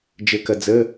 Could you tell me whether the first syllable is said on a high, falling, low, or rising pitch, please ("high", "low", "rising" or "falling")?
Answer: low